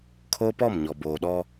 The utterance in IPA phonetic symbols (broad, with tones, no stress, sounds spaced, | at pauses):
kʰ oː˦ p ɔ˦˨ m ɲ ɔ˨ b oː˨ ɗ ɔ˦